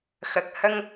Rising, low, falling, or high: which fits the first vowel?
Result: low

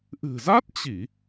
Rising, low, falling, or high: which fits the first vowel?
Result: low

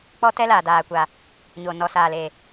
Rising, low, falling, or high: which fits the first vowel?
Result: high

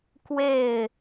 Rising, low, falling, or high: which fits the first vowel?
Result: falling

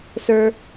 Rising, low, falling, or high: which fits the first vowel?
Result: low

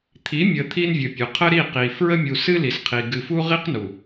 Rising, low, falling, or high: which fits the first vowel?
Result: rising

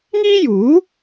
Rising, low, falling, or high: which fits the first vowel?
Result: high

